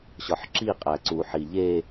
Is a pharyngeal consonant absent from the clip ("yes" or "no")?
no